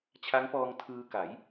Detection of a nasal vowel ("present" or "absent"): absent